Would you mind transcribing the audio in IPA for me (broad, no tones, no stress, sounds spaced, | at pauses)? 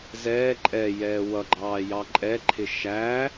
z ɛː ǃʼ ɛ j ɛː w ʌ ɡ͡ǃ ɑː j ɑ ǃʼ ɛ ǃʰ ɪ ʃ æ